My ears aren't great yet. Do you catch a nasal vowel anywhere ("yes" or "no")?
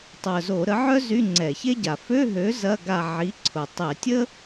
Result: no